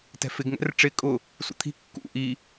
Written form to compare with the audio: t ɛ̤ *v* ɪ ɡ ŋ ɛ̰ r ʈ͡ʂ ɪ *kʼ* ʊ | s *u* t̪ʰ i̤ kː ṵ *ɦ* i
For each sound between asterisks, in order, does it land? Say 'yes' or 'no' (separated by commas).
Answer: no, yes, no, no